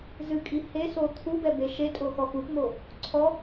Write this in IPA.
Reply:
z ɨ kʼ i h e s o t̪ʰ u b ɛ b e ʃ e tʼ o x ɔ x u p m o | ǀʰ ɔ

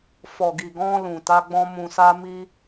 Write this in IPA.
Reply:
f ɔ˨ ɡ i˨ ɡ ɔ̃˧ l ũ˨ t a˧ ɡ͡b ɔ̃˧ m ũ˨ s a˧ m i˧

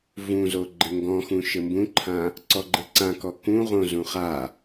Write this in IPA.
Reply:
v ũ z o ɡ͡ǃ ɘ ŋ ɡ ɔ̃ x ũ ʃ ɘ m b ũ ǃʰ ã | ǀ ɔ ɡ͡ǃ ɘ ǀ ã k ɔ k ũ ʁ õ z ũ χ a

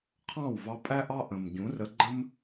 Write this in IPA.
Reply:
qʰ ɑ̃˦˨ w v ɑ˧ pʼ æ˦ ʔ ɑ˦ ʔ ə̃˨ m ɟ ũ˨˦ r ə˧ ɡ͡ǃ ə̃˦ m

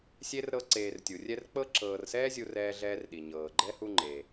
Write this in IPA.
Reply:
sʲ e˥ r ɾ ɤ˦ ǀ eː˨ r tʲ u˩ rʲ ɛ˦ r k͡p ɤ˦ ǁ ɤː˨ r s ɛː˥ zʲ u˦ r ɛː˦ ɮ ɛː˦ r ɗ i˩ ɲ ɤː˩ ɡ͡ǃ ɛ˥ h u˦ ŋ͡ǃ e˩

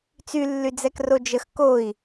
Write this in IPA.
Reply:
t͡s y lː y d͡z ɛ k r o d͡ʒ ə x k o i̯

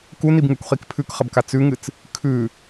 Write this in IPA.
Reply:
k u n i b ŋ ʉ kʷ χ i k pʰ ʉ k χ ɐ b k a t͡s ʉ ŋ ɨ t͡s | kʰ ʉ

